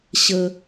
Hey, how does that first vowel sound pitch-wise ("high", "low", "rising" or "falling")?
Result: high